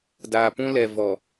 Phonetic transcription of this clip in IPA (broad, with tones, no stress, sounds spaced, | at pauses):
d aː˨ p ũ˦ l ɛ˨ v ɔ˨